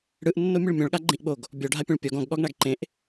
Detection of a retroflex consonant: present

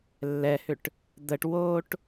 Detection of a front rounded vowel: present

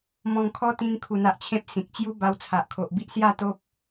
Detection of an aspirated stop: present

